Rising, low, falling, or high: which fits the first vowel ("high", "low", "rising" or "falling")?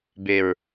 low